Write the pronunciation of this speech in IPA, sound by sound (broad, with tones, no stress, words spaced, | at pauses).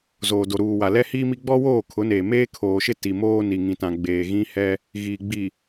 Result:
zoː˨do˨ɾuː˨wa˨ lɛ˦hiː˦mi˦ ɡ͡bɔ˦woː˦˨kʰʊ˨˦neː˨ meː˦kʰoː˨ʃɪ˦ ti˨moː˦ ni˨ŋĩ˨tã˨ ɡ͡beː˨ɣĩ˦hɛ˦ | ɣiː˨ɡ͡bi˨